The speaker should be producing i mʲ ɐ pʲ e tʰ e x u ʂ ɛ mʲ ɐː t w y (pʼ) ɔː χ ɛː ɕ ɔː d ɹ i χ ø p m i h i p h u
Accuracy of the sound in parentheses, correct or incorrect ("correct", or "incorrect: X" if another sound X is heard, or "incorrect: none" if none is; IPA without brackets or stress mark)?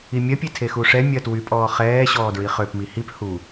correct